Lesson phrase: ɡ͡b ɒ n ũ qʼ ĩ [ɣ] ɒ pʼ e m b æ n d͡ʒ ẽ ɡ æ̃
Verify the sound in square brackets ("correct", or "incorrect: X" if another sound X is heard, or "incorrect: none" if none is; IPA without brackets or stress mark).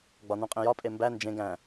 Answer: incorrect: j